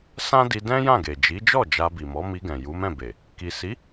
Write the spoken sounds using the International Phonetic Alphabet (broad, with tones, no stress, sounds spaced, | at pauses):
s ã˦ d i˧ d ɛ̃˦ j ã˦˨ ɡ e˨ d͡ʒ i˨˦ d͡ʒ ɔ˦˨ d͡ʒ a˧ b i˨ m ɔ˨˦ m i˧ ɡ ɛ̃˨ j u˨˦ m ɛ̃˦˨ b e˨ | k i˨ s i˨˦